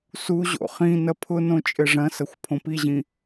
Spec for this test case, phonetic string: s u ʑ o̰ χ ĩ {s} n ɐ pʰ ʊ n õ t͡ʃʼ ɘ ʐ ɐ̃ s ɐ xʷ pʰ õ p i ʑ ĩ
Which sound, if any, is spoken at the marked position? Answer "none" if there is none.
none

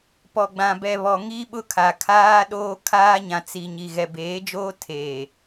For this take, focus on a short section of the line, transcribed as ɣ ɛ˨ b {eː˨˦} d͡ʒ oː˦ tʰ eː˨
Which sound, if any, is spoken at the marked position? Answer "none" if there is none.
eː˨˦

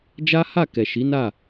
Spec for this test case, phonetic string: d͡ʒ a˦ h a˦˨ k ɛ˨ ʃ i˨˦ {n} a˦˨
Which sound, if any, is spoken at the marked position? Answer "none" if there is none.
n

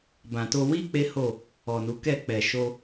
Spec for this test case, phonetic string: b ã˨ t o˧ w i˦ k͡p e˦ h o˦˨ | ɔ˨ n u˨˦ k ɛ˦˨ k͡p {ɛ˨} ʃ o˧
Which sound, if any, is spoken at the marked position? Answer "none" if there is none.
ɛ˨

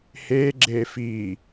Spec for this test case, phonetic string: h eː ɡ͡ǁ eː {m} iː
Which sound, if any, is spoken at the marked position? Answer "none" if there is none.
f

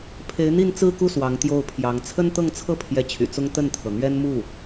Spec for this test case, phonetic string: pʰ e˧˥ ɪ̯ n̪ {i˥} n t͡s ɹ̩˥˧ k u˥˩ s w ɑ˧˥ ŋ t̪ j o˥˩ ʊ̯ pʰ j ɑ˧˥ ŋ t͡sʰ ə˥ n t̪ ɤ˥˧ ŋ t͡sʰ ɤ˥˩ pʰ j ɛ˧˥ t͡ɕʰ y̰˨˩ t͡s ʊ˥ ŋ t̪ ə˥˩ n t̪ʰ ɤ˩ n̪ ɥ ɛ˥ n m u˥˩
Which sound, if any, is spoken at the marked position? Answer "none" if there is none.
i˥˧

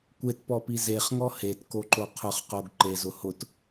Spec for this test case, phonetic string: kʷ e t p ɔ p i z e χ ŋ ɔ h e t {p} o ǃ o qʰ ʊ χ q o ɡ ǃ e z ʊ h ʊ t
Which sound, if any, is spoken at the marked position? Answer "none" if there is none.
k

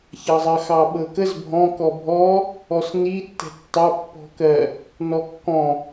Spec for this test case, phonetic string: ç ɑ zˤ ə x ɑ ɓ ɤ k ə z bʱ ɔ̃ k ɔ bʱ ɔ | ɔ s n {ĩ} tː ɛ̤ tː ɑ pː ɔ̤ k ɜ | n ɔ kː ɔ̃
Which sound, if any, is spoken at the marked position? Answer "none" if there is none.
i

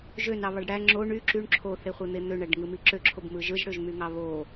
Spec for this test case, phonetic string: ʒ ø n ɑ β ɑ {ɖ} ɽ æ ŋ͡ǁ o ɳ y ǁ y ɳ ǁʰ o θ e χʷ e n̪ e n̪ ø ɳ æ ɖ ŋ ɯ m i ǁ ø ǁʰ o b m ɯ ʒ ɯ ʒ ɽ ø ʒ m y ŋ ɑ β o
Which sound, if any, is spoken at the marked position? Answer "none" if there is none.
ɖ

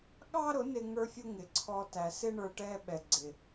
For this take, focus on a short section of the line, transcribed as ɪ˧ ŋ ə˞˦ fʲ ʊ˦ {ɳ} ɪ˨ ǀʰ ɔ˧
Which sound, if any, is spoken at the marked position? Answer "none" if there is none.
ŋ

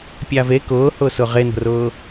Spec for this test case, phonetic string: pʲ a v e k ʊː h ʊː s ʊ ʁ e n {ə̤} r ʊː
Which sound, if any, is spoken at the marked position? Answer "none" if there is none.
ə̤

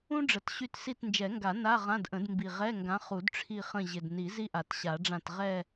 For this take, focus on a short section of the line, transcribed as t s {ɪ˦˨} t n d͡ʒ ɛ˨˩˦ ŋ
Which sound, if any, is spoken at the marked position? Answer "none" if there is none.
i˦˨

